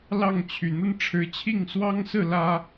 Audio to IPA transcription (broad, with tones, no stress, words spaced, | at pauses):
lɑ˥˩ŋt͡ɕʰy˨˩n̪ə˥n ʈ͡ʂʰɻ̩˧˥t͡ɕʰi˥˩ŋswɑ˥ŋsɹ̩˥˩ lä˥